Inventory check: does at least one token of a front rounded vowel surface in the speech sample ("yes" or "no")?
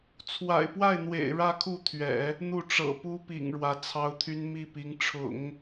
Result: yes